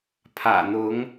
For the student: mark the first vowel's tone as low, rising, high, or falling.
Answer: low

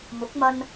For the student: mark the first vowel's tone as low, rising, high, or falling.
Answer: rising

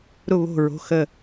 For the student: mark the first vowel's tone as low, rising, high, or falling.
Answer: falling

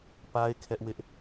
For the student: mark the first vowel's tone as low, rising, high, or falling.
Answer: high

